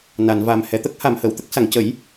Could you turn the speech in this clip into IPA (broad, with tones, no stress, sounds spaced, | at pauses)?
n a˨˩˨ n v a˨˩ m h ɛ˨˩˨ t̪ ə˦˥ k̚ h a˨˩˨ m h əː˨˩˨ w t̪ ə˦˥ k̚ s a˨˩˨ ŋ c ə˨˩˦ j